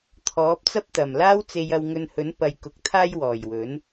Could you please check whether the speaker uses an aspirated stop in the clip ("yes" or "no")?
yes